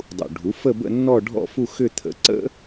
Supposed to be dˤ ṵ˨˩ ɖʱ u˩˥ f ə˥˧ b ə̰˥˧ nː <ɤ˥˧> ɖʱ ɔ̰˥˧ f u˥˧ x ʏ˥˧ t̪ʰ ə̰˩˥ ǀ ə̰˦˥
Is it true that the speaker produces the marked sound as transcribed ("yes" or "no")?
no